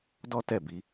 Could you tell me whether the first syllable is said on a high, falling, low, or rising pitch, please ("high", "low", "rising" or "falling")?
high